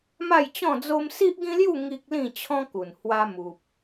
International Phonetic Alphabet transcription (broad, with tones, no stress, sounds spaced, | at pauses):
m a˥˧ j t͡ɕ ɔ̃˥˧ d͡z o˦ m s i˦ ʔ ɡ ĩ˦ l j u˥˧ ŋ i˦ k̚ l ĩ˥˧ t͡ɕʰ ɔ̃˦ k u˨˩ n h w a˧ m u˨ p̚